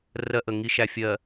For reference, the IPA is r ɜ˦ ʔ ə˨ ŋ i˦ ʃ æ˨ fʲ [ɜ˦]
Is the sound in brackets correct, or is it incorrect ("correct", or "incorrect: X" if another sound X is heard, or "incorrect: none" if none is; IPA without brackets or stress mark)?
incorrect: ɜ˨